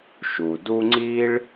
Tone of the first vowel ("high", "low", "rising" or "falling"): low